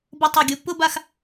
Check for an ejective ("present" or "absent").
absent